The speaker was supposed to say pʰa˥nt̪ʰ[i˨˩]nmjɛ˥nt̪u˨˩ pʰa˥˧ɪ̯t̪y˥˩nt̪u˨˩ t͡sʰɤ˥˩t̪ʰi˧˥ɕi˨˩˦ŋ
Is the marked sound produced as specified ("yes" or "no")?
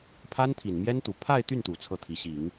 yes